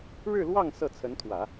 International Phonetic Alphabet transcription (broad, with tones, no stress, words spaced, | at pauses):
ɻɻ̩˥˧lwɑ˥˧ŋ sɤ˥˩t͡sʰə˧˥nt̪ʰwä˨˩˦